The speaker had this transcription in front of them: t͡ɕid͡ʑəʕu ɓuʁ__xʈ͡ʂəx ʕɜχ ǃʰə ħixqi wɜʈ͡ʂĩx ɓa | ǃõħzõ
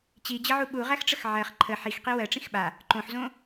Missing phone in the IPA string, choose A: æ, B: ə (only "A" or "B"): A